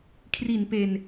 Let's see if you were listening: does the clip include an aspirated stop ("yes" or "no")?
yes